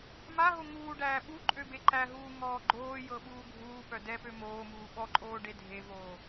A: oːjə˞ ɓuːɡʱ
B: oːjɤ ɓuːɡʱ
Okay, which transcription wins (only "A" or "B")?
B